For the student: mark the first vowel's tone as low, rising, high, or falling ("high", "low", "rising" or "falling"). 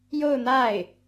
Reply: falling